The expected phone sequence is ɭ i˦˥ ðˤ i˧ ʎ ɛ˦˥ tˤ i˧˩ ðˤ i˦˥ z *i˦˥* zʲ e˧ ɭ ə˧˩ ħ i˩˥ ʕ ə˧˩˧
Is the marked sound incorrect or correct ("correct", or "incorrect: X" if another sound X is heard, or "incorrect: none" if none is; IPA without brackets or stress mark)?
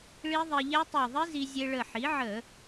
incorrect: i˧